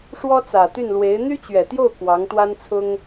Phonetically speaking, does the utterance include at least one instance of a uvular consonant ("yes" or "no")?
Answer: no